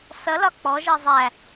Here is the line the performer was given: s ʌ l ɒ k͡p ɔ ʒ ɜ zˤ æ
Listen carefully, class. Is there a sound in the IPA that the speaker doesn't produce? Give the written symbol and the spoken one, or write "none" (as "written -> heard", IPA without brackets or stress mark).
none